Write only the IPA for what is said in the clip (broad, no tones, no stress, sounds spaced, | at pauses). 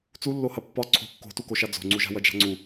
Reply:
t͡s u lː o h ɐ pː ɒ ǀʰ o̤ kː o̤ t u k o ʃ a d͡z o̤ ŋ͡ǀ u ʒ a̤ w ɐ d͡ʒ a̤ ŋ͡ǀ u